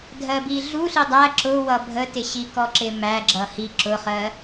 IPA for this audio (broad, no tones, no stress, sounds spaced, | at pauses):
dʱ ɜ b i ɮ u ɬ i dˤ æ ǁ ʊ w ʌ bʱ ə t ɪ ɕ i k ɔ ǁ ɪ m æ ɡ͡ǁ ʌ h i ǁ ʊ χ ɜ